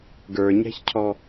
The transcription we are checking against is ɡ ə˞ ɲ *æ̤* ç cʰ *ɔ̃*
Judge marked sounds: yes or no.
yes, no

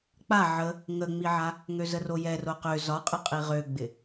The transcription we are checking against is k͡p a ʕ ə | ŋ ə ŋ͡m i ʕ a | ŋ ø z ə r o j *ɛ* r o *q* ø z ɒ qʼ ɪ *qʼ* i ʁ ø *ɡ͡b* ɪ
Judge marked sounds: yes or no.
yes, yes, yes, yes

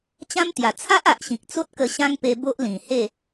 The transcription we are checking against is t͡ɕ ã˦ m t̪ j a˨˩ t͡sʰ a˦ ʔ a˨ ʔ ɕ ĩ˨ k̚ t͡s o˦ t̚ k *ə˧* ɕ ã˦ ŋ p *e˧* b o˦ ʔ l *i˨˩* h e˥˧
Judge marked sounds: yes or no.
yes, yes, no

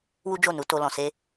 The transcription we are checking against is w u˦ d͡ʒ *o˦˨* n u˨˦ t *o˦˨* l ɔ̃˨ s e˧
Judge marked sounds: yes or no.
yes, no

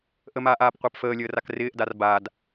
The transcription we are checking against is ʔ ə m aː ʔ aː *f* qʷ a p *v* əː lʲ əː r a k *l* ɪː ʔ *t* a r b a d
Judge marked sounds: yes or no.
no, no, no, no

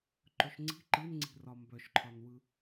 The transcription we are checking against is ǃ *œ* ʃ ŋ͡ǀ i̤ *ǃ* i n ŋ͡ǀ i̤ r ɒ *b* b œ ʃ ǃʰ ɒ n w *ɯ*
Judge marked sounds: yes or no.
no, yes, no, yes

